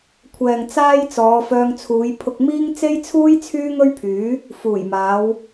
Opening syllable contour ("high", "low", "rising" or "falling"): low